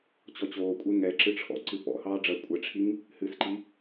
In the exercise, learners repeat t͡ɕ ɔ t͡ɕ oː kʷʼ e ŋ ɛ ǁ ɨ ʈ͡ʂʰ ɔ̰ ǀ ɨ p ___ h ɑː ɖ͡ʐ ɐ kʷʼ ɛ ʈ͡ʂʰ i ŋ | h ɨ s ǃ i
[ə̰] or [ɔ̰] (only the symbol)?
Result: ɔ̰